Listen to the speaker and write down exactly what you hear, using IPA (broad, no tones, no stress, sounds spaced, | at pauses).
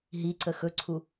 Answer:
ɦ i ǀ ə x ɵ ǀʰ u